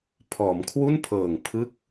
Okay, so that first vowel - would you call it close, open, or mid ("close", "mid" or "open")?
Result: mid